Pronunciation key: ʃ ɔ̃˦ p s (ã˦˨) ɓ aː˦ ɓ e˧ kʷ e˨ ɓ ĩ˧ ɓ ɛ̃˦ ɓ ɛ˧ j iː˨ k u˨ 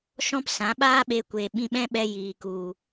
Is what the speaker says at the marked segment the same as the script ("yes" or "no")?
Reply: no